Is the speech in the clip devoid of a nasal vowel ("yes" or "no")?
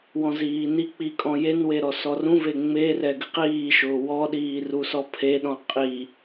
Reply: no